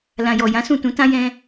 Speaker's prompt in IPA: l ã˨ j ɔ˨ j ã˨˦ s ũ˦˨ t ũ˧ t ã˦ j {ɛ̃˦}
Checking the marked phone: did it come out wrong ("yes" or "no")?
no